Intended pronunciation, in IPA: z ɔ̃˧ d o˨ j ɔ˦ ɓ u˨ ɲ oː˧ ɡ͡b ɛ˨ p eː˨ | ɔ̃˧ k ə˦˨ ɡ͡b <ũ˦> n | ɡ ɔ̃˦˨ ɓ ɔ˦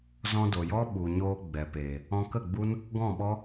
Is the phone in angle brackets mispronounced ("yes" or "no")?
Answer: yes